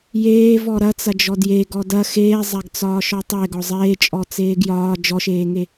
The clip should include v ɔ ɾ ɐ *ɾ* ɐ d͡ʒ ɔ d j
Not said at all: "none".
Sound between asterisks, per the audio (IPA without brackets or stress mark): t͡s